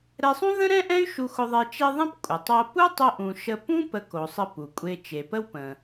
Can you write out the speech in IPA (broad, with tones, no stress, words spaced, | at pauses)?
ɾɛ˧sˤũ˥ ðə̃˥ɾɛ̃˥ʔɛ̃˥y̯ ʃu˧xʊ˧ðˤe˧ t͡ʃe˧ ðˤẽ˥p kʷʼə˩tˤo˧ pu˥tˤʊ˧ʔũ˩ ʃə˧ pũ˥ pə˧ko˩sˤə˧ pu˩kʷʼe˧ t͡ʃe˩pə˥wpə̃˩